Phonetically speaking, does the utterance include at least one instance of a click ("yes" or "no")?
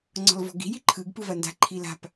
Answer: yes